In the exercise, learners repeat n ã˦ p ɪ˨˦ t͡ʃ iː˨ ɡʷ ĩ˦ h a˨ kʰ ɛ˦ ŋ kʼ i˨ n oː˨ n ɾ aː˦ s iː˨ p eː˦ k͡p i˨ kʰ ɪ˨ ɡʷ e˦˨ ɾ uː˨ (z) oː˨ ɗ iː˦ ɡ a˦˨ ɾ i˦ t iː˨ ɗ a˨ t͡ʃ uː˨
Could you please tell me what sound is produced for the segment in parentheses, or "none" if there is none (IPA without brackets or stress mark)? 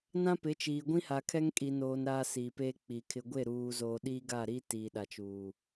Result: z